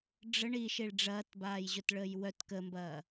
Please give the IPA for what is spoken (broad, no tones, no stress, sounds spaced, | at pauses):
ɖ͡ʐ ə ɳ i ʃ i ɭ ɖ͡ʐ ɐː t b aː j ʑ ʊ t ɭ əː j w œ t k ə m b ɐː